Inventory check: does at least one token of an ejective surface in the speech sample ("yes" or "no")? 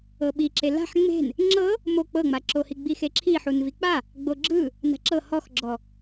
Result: no